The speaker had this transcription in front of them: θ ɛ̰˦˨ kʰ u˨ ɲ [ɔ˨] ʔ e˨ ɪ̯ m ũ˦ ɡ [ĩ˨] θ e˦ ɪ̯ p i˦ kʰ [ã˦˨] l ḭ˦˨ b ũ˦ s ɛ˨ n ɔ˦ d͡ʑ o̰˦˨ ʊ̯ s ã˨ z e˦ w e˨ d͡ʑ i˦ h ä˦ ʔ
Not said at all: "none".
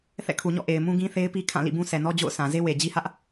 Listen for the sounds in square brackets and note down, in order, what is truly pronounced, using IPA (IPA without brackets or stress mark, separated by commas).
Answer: ɔ̰˦˨, ĩ˦, ã˦˨